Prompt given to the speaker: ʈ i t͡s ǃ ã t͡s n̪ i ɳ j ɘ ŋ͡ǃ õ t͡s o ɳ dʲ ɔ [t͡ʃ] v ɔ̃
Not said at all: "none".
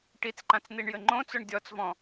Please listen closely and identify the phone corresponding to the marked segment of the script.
t͡s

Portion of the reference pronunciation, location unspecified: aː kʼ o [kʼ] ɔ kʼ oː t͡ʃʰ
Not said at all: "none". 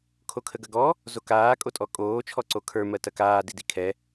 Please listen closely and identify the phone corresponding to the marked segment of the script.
tʼ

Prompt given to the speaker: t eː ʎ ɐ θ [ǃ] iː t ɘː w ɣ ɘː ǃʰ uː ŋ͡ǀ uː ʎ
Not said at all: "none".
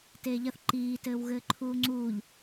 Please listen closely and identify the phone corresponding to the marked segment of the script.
ǃ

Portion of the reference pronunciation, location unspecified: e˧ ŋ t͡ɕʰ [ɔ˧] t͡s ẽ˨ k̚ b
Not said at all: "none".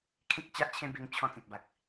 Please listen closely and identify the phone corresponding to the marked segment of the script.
ɔ̃˧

